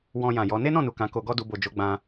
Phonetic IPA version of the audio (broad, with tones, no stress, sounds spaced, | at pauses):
w ɔ̃˧ j ã˨ j ɔ˨˦ n e˦ n ɔ̃˦˨ n u˨ k ã˨˦ k o˧ ɡ ɔ˦ d u˧ b o˨ d͡ʒ o˨˦ ɡ͡b ã˧